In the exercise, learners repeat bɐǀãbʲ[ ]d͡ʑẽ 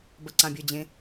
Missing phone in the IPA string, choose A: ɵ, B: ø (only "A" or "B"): A